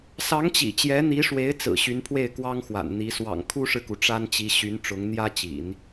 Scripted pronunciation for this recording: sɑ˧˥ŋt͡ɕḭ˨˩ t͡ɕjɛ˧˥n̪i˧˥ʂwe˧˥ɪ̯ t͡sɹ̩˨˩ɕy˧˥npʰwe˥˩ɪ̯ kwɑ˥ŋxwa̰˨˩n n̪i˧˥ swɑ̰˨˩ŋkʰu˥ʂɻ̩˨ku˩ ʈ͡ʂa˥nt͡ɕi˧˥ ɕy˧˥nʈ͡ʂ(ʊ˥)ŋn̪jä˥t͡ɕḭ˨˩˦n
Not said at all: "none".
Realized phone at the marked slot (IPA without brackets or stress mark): ʊ˧˥